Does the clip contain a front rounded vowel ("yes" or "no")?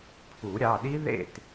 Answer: no